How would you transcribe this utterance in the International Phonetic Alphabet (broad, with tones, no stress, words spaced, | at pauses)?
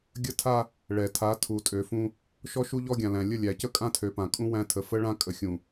ɡʲə˦tʰa˦ | ɭɛ˨ tʰa˨˦ tʰu˨tʼø˨fũ˦ | ʃɔ˦ʃu˦ʎɔ˦ɡʲã˨ læ̃˨lʲə˦˨lʲæ˨cə˦ kʼã˦tʰø˨pã˨kʼũ˦ wæ̃˦tʰə˨ fə˦ɭã˦kʼə˨xʲũ˨